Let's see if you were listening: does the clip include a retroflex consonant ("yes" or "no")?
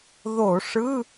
yes